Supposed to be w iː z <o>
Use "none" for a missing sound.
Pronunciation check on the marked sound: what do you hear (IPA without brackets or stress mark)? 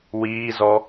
ɔ